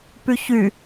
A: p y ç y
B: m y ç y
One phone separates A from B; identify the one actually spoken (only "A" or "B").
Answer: A